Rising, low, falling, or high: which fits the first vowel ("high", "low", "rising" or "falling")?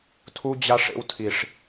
high